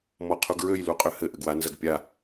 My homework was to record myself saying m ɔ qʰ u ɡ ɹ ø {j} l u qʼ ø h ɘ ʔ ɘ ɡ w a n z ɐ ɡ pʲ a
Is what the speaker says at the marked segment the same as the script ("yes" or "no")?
yes